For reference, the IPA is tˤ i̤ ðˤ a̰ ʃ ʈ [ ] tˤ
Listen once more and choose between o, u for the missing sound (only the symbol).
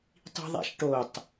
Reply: o